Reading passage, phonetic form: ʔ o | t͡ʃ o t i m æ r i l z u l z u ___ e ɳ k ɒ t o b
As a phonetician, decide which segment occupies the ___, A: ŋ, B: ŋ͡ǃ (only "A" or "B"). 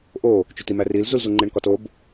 B